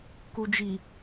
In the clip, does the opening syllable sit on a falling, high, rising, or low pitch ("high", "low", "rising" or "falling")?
low